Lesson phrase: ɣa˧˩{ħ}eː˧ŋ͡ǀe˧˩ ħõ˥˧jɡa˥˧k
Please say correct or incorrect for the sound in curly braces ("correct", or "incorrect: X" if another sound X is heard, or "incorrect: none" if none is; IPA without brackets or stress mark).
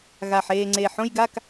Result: correct